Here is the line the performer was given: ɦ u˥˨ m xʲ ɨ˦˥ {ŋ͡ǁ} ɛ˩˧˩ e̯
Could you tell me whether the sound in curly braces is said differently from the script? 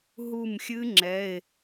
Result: no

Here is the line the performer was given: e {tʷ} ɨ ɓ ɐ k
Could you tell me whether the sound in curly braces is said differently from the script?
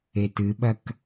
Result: yes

